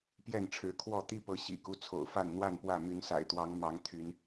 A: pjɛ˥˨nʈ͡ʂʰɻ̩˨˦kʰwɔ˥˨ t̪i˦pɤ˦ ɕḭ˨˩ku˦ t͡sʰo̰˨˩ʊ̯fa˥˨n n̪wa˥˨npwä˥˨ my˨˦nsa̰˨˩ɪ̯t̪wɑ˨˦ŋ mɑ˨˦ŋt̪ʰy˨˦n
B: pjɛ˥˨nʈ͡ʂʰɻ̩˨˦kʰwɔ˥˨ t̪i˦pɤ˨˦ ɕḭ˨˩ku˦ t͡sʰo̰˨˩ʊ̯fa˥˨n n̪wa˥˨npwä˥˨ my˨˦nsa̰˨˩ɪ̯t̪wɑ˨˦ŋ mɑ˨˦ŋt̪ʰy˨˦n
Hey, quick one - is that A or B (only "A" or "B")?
B